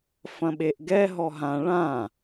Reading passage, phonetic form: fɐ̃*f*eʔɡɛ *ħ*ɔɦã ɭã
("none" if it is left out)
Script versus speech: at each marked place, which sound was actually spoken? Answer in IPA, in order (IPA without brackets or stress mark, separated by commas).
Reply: ɓ, ɦ